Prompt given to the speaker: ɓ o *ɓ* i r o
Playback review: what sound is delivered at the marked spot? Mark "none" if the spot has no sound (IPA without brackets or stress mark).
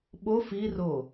f